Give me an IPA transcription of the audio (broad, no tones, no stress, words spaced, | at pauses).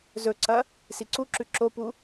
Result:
zɵǀɐ | siǀuǁʉ ǁopu